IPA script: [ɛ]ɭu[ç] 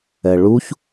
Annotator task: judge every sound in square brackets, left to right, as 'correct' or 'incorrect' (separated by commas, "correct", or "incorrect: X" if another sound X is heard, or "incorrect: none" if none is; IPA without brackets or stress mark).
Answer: correct, correct